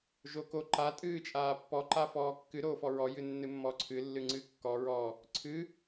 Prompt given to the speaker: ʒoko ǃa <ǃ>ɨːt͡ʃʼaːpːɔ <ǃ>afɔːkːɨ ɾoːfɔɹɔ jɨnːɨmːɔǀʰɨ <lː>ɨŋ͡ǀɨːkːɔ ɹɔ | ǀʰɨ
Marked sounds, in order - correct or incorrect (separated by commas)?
incorrect, correct, correct